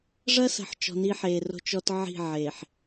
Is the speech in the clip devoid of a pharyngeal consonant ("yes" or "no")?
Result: no